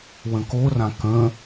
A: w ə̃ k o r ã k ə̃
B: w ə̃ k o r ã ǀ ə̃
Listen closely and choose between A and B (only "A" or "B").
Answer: A